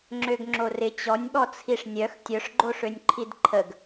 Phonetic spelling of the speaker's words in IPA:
ŋ͡ǁøɡŋ͡ǁorɪ t͡ɕɔnʲɓɔt͡sʰiʂ nʲœx tʲœʂɡ͡ǃoʂønʲǃʰid ǃʰəɡ

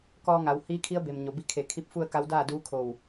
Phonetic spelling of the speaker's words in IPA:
kɔː˧ŋa˩˧w hiː˧˥kʰi˧˥ə̯be˩m ɲo˩bi˧˥kʰe˧˩ kʰi˧˥p̚fu˥˨ə̯ ka˧˥wdaː˥˨duː˧˥kʰo˧˩w

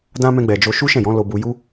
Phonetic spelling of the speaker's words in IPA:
dã˦mɛ̃˧ɡ͡bɛ˨d͡ʒo˧ ʃu˦ʃɛ̃˦˨jɔ̃˨˦ lo˧ bu˧ ju˦

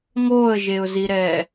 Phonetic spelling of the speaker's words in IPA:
ŋoə̯ʒeʊ̯ziɾɛː

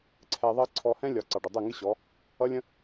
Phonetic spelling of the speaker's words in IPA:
ǀʰɛ˧ðˤʌ˦ ǀʰɔ˧hɛ̃˦lʲɒ˨ ǀɑ˨ɖə˨dˤɛ˦˨ŋɪ˦ ɕɔ˨˦ | ʌ˦lʲə̃˦

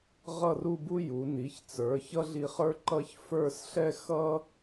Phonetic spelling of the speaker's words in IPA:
ʁʌ˥˧ru˥˧bu˥ju˩˧ ni˩˧çt͡sə˞˩˧ çʌ˥ɮi˧χə˞˥ ǃʌ˥ç fə˞˥˧sɬɛ˥ xʌ˥

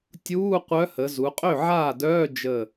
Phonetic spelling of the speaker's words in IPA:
tʲuː˧˥˧qʷœ˧˥hə˩˧ zu˩˧qʼø˥˩ʕaː˥˩dœː˧˥˧ d͡ʒə˧˩

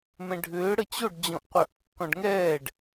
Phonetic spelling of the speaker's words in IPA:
mɛ̃ɖʱʏː ɽət͡ɕoɖ d͡ʑɔ̃ʔqʷœʔkːɔ̃ɖŋɛːɖ

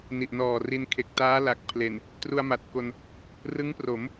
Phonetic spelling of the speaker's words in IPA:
ni˨˩ʔnɔː˨˩ri˧n kʰe˨˩k̚taː˦˥la˨˩k̚pʰle˨˩n | tru˧a̯ma˨˩t̚ko˧n | rɯ˦˥ŋpro˩˦m

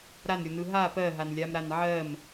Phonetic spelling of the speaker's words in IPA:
ɾanɾʲonɯ ɦa pɜɦanlʲamɾan ʕɜm

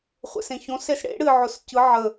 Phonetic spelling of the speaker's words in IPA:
χʷḛsẽçõs esɽḛ ɽɨ ʕʊscɯ ʕə

